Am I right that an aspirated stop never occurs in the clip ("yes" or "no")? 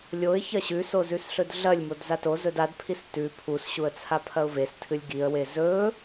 no